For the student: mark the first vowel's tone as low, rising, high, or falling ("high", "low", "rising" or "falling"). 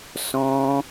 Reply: high